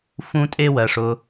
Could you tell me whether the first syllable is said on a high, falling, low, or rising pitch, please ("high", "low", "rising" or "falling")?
high